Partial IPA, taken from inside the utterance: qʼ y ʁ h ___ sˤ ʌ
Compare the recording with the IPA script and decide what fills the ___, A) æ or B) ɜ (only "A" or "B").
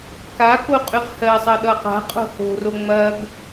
B